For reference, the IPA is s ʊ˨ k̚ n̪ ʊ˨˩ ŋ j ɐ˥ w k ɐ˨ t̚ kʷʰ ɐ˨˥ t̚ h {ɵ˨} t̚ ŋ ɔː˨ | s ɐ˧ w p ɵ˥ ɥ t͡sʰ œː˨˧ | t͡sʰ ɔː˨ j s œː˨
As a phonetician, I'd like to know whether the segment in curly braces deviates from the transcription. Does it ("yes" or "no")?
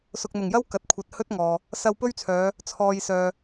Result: yes